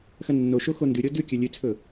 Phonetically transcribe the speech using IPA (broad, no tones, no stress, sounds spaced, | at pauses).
x ɐ nː o ʃ o x o n d ʉ ɾʲ o d ʉ kʲ ɵ lʲ ʉ t͡sʰ ɵ